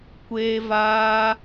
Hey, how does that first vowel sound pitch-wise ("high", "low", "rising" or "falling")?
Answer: high